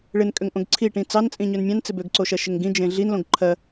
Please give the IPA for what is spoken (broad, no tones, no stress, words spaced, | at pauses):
ɭɪnkʼøŋ ʔõɡǀʰiʈĩ t͡sɑnt͡sʼĩ ɲønmʲɑ̃n t͡sɪbøɡǀoʃɜ ʃɪŋɡĩd͡ʒẽ ɮinlõɡ ǃʰɜ